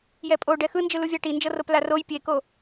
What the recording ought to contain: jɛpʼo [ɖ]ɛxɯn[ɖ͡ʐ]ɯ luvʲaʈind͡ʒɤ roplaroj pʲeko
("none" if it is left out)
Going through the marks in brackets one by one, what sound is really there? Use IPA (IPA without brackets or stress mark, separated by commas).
ɖ, d͡ʒ